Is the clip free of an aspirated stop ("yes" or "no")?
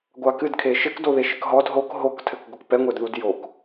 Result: no